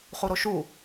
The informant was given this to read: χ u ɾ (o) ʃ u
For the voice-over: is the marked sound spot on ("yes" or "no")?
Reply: yes